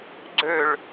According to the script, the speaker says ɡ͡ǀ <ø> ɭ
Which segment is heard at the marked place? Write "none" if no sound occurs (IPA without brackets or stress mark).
ø